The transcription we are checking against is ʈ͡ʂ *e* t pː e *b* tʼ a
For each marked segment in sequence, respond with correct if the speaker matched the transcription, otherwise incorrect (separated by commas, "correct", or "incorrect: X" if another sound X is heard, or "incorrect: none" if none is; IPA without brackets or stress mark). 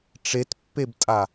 correct, correct